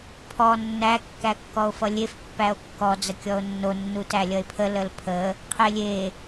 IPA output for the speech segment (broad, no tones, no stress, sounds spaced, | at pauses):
pʰ ɔ nː æ kː æ kː ɔ o̯ f ʌ lʲ e f pː æ o̯ kː ɔ d͡z ə kʲ ɔ o̯ nː o nː u t æ lʲ ʌ e̯ pʰ ə l ə l pʰ ə | qʰ e lʲ e